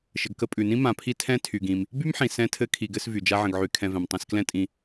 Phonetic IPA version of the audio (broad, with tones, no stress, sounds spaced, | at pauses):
ʃ ə˨ ɡ k ə˦ pʼ ʉ˩ n ĩ˥ m ã˨ pʰ i˥ tʰ ɛ̃˦ tʰ y˩ ɡ ĩ˩ m | b y˥ m ħ ĩ˩ s ɛ̃˦ tʰ ɘ˦ kʰ i˨ ɡ ɘ˦ s v y˩ d͡ʒ a˦ ʕ ə̃˨ ɡ ʕ y˨ kʰ ɛ̃˨ v ɛ̃˩ m tˤ ĩ˨ s k l ɛ̃˦ tʼ ĩ˨